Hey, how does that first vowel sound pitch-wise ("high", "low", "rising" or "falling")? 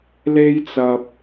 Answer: high